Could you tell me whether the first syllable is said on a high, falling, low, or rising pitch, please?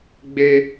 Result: high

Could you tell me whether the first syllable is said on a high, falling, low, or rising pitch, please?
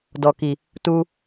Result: low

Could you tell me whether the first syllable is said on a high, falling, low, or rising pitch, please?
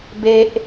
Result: high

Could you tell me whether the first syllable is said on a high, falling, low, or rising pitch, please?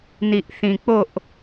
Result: low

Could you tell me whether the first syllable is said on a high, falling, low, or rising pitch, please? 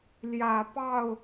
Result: low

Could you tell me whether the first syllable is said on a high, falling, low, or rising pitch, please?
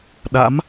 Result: rising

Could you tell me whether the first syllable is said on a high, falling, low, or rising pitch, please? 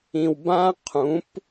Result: low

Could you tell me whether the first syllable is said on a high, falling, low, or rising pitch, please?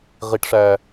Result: high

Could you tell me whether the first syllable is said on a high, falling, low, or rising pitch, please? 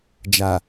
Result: low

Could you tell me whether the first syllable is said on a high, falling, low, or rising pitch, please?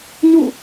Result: falling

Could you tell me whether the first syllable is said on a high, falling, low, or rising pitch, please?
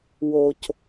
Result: low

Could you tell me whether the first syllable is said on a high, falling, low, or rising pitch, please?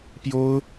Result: high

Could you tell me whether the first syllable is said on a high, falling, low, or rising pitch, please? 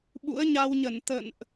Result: rising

